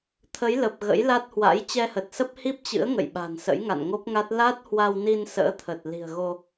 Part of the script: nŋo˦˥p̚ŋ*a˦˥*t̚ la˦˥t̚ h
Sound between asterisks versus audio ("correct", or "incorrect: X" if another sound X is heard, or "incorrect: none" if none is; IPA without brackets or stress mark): correct